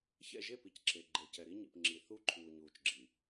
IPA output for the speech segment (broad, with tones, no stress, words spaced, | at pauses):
çɛ̰˦˨ʒe˦˨pi˨c ǁe˨ ɡ͡ǃe˨cɛ˨ ɾi˦ɲḭ˨pŋ͡ǁi˨θu˦ ǃʰuː˨ɲuː˨t͡ʃ ɡ͡ǁi˨